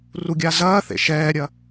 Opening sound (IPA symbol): r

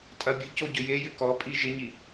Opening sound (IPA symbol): tʼ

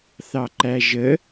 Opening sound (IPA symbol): θ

